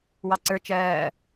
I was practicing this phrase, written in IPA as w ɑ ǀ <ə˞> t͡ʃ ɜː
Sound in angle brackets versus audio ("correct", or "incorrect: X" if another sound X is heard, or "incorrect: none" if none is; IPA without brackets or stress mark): correct